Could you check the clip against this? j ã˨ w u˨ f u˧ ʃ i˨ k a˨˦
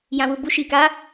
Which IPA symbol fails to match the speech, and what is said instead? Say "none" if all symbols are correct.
f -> b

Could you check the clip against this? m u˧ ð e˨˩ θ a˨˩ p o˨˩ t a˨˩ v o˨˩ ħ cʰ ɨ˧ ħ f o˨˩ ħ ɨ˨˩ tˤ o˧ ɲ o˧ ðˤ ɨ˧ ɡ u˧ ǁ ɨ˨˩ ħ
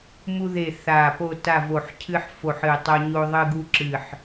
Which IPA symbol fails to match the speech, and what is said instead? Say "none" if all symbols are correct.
none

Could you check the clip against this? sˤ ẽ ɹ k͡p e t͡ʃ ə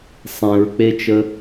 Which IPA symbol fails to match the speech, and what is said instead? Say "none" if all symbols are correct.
none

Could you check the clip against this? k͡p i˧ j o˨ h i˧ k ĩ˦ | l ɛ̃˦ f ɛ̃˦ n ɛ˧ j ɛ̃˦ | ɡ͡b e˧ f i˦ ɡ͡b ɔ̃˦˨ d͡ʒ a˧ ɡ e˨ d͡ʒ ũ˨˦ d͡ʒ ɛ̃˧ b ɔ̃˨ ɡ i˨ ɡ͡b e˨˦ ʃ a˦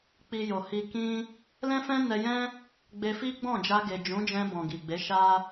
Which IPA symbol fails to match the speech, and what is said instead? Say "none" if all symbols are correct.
none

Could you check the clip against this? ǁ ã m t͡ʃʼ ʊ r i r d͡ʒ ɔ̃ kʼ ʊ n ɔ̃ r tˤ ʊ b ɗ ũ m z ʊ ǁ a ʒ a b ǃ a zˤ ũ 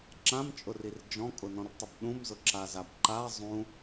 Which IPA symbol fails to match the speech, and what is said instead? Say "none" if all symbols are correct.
ʒ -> z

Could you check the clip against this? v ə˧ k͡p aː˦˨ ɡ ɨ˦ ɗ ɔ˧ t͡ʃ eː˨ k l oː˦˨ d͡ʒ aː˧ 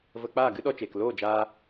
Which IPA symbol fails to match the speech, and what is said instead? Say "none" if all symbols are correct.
none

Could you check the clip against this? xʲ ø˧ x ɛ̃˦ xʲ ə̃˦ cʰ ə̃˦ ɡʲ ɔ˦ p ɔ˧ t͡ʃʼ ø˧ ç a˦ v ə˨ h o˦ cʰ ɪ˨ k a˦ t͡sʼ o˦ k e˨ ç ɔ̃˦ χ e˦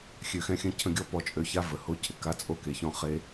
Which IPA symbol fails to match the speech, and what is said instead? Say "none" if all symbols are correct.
none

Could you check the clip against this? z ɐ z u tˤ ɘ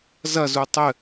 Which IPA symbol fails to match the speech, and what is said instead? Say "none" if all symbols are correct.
none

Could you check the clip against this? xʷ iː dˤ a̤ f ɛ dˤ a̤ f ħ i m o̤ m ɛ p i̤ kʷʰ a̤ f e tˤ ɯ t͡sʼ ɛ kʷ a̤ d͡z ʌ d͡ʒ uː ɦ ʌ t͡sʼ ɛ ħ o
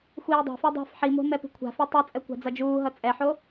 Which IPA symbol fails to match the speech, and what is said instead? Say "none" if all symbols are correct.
none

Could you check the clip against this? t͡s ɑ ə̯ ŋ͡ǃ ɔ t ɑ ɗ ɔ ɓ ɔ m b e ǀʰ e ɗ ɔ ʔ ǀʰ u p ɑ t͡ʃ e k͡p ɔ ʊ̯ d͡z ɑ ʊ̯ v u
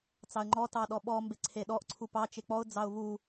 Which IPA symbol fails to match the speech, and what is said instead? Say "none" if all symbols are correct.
none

